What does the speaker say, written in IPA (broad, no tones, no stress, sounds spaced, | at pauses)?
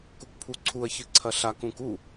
k u k pʰ u ǀʰ u ɐ̯ ç ɨ ǀʰ ɐ ɬ a k ũ k u